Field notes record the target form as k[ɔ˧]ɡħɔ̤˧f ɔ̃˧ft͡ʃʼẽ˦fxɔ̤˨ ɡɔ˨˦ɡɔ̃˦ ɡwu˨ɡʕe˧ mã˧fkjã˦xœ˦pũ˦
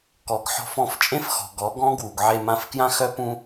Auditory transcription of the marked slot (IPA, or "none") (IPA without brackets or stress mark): ɔ˨